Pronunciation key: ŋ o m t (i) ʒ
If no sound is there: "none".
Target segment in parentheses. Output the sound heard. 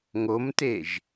e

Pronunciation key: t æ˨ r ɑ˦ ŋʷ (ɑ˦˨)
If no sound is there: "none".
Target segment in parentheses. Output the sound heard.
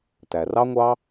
ɑ˦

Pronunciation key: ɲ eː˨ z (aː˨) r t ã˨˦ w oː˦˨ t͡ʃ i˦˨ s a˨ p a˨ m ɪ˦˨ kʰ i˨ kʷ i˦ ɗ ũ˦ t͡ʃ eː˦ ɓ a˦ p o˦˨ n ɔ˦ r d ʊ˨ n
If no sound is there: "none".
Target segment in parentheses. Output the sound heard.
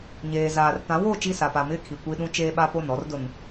aː˨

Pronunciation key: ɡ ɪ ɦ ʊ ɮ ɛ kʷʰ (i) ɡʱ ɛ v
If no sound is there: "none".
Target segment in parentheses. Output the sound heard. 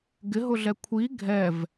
i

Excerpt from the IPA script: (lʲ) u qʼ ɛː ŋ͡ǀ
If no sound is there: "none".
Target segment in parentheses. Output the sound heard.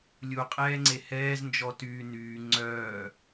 lʲ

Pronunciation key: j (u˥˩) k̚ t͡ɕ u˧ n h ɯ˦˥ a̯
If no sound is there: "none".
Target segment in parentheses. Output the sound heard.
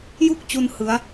u˥˩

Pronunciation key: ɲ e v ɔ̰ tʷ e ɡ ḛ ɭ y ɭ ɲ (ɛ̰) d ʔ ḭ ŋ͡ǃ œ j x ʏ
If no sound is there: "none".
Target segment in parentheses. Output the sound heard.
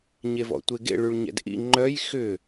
ɛ̰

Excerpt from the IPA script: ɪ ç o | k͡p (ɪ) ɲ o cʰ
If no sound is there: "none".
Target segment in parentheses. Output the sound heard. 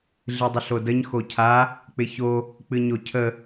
ɨ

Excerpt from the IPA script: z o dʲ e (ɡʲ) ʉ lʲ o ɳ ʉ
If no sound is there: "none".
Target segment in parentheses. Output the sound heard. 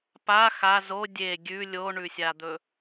ɡʲ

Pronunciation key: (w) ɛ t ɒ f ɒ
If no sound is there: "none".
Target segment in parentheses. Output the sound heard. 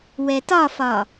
w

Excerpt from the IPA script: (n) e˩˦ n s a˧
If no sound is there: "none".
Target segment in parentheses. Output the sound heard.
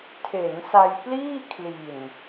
tʰ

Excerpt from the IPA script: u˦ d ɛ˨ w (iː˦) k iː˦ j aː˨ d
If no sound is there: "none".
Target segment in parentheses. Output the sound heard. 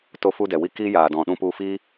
i˦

